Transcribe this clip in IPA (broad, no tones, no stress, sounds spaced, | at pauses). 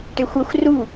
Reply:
ʈ e xʷ ɐ xʷ r u